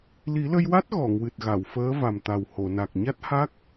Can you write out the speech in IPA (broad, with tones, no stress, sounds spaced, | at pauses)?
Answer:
l i˨˩˦ l ə˧ j w a˦˥ t̚ ɣ ɔ˨˩˨ ŋ w ɨ˨˩ t̚ ɣ a˨˩˨ w f əː˧˥ v a˨˩ m t̪ a˨˩ w h o˨˩˨ n a˨˩ k̚ ɲ a˦˥ t̚ h a˦˥ k̚